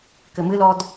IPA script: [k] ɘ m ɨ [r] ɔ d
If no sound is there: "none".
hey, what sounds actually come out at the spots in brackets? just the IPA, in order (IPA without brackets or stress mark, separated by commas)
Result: k, l